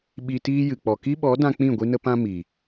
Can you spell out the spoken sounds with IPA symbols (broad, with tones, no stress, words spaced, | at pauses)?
ɓi˧tiː˦jɨ˨ k͡pɔ˨ki˦ɓɔ˨˦dã˧ k͡pĩ˦˨ ɡʷi˦nə˦pã˦ mi˨